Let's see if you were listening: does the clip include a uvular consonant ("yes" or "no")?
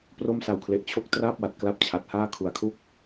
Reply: no